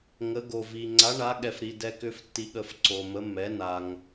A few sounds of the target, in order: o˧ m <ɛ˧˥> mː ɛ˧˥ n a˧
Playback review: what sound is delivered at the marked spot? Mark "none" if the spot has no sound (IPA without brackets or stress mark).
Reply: ə˧˥